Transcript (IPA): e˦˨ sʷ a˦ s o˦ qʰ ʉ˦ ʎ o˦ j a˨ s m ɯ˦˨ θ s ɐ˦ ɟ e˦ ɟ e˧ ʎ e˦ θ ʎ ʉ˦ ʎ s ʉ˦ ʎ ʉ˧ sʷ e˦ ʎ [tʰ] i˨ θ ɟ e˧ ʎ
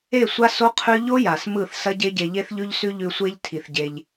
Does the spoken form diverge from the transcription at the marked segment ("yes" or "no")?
no